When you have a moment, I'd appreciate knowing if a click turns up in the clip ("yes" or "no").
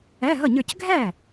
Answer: no